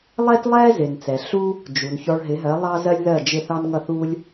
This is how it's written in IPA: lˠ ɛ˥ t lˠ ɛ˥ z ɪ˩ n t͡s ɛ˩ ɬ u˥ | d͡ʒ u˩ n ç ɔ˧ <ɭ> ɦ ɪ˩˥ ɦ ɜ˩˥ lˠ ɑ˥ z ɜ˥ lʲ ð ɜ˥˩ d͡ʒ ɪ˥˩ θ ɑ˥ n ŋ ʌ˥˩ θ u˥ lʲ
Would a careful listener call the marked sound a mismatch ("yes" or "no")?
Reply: no